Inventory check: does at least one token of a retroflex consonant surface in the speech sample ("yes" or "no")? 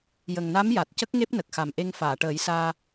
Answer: yes